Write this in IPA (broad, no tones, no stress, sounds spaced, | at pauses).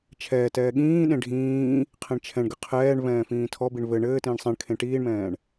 t͡ʃʰ ɛː t ɛː ɠ ĩː ɗ ẽ ɖʱ ĩː | qʰ ẽ ɳ t͡ʃʰ ɛ̃ ɳ ɡ ɘ qʰ ɛː ɳ v ɛ̃ː f ĩː tʰ ɔ b i ɳ v ɘ ɳ ɘː t ĩː ɳ sˤ ɛ̃ ɳ kʰ ẽ ʈ iː ɳ m ɛ̃ː ɳ